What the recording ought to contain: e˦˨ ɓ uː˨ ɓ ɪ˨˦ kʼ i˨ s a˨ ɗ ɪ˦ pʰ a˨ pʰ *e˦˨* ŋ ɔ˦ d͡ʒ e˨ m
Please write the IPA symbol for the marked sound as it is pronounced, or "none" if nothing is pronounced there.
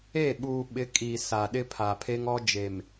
e˦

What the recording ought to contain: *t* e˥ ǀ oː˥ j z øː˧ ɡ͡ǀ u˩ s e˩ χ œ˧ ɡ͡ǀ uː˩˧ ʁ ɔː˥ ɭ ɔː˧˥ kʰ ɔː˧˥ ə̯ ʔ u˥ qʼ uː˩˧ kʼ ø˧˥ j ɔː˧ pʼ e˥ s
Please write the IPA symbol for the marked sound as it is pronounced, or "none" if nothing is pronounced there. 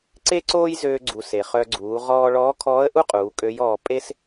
ǀ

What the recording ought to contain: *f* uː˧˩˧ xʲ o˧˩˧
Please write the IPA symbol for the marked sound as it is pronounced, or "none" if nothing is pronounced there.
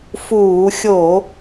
f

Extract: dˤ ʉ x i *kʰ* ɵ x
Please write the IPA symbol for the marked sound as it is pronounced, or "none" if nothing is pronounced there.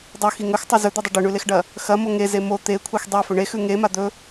ŋ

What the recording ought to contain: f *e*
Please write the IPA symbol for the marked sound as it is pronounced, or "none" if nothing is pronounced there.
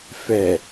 ɛ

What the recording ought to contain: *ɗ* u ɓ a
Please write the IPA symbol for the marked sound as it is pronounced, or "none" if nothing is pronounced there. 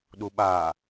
ɗ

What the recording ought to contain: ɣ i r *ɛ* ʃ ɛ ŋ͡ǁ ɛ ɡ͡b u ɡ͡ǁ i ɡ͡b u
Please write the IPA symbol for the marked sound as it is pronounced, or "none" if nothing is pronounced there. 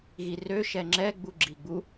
ø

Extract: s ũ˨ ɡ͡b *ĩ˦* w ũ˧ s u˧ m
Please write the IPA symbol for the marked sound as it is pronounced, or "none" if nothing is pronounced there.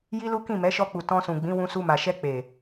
ĩ˨˦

